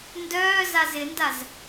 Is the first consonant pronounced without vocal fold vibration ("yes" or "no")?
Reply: no